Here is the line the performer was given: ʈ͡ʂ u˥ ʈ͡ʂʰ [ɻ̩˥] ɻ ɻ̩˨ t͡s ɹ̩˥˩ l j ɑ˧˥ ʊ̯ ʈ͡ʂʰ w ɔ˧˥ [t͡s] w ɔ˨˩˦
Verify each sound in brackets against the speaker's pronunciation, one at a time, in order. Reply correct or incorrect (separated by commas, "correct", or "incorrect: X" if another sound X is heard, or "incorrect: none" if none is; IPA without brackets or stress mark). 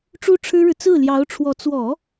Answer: correct, correct